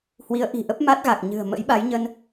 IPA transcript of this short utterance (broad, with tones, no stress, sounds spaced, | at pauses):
h w i˨˦ ə̯ ʔ i̤˨˩ ʔ ə˦˥ p̚ m a˦˥ t̚ ɣ a˨˩ k̚ ɲ ɨ̤˨˩ ə̯ m ə̰˧˥ j ɓ a˨˦ j ɲ ə˧ n